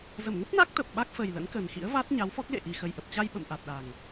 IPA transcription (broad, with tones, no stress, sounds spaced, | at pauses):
z ə˧˩ m ŋ ə˦˥ p̚ n a˦˥ k̚ t̪ ə˨˩ p̚ ɓ a˦˥ k̚ f ə˨˩ j l ə̰˧˥ n k ə˨˩ n x ḭ˧˥ ə̯ v a˦˥ t̚ ɲ a˨˦ w f ɔ˦˥ k̚ l ḛ˧˨ ʔ i˨˩ x ə˨˩ j ʔ ə˨˩ p̚ t͡ɕ a˧ j ɓ ə̰˧˨ m ʔ a˨˩ t̚ ɗ a˨˩ ŋ